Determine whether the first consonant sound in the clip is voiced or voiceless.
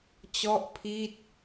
voiceless